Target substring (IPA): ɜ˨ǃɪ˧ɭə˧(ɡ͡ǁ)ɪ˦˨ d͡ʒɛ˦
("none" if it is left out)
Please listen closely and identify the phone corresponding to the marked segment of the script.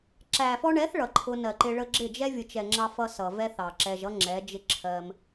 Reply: ɡ͡ǁ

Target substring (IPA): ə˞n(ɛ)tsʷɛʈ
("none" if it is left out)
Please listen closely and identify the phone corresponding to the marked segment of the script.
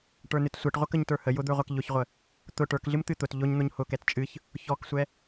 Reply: ɨ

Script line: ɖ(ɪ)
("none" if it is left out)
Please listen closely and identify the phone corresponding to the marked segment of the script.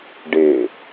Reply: ɪ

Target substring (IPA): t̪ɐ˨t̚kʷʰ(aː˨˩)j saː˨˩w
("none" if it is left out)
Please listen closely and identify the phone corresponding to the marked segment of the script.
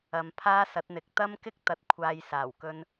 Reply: aː˨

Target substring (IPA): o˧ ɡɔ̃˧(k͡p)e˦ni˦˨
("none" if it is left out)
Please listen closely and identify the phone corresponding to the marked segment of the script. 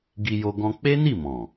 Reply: k͡p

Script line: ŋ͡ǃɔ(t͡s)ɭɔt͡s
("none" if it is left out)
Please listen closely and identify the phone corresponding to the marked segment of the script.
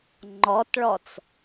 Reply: t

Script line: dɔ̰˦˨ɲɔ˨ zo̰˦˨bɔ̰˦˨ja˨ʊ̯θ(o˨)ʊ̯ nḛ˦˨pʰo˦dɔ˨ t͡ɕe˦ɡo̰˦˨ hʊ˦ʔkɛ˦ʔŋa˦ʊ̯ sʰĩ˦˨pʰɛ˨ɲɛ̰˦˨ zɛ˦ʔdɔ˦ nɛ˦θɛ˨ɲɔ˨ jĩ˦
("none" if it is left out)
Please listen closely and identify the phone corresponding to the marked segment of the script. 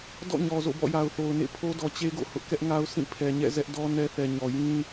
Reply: o˨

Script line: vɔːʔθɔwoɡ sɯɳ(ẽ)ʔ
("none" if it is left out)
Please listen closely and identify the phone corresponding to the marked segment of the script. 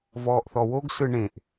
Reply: ẽ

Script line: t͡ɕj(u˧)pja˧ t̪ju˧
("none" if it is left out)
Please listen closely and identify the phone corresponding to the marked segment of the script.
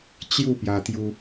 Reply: u˥˧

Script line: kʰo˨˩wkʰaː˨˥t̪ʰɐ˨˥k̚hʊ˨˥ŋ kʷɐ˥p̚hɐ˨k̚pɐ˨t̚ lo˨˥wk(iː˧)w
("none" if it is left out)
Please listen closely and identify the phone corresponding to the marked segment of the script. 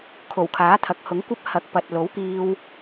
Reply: iː˧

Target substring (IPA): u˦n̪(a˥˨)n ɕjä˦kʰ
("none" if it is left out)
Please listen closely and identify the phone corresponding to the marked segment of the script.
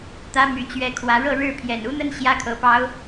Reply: ə˥˨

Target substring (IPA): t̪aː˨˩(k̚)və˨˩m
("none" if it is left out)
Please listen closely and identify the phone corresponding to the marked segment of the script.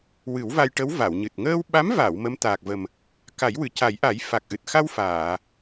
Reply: k̚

